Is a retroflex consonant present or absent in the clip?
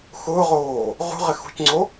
absent